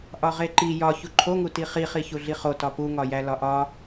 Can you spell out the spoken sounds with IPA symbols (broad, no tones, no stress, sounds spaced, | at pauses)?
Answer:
ʔ ɒ ʁ e ǃ i j ɒ ç u ǃʰ o ŋ u t i χ i χ i ç u ɮ i χ o t ɒ p u ŋ ɒ j æ l ɒ ʔ ɒ